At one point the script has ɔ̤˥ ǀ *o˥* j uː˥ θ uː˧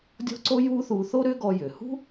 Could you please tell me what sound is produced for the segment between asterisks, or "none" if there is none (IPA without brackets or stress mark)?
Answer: o˥